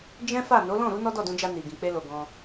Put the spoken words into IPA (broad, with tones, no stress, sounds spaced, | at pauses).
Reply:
d͡ʒ ɛ̃˦ f a˦˨ n o˨˦ l ɔ̃˦˨ ɾ u˨˦ n ɔ˦ d ɔ˦˨ d ũ˧ d͡ʒ a˧ n i˨ ɡ ĩ˨ k͡p e˧ l o˨ ɡ ɔ̃˧